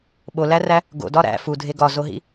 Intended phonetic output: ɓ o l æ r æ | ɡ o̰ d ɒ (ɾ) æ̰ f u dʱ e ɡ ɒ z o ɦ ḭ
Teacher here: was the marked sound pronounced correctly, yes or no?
yes